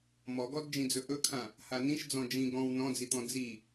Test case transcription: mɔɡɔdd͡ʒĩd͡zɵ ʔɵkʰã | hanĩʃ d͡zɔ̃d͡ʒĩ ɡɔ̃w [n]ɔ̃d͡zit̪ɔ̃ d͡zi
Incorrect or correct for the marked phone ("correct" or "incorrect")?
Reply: correct